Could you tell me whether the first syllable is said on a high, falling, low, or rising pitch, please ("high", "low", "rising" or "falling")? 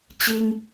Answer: high